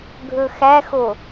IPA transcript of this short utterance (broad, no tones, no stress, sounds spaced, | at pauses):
ɡʱ ɵ x æ x o